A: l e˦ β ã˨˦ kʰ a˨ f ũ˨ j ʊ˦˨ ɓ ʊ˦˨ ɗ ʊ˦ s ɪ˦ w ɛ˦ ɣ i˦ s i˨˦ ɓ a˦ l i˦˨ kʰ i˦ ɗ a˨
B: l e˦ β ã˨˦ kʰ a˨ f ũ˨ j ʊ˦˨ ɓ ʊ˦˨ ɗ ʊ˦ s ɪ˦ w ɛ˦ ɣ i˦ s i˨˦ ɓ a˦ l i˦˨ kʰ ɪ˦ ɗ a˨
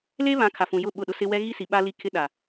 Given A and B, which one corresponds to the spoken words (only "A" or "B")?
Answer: B